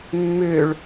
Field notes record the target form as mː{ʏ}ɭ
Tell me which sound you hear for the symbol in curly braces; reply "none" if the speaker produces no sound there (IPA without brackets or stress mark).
ʏ